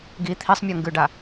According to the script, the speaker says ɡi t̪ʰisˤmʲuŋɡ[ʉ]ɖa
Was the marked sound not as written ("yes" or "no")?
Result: no